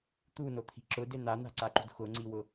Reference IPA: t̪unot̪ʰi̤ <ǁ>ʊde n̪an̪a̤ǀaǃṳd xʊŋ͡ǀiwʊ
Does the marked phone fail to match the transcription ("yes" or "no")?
no